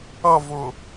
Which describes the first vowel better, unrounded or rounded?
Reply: unrounded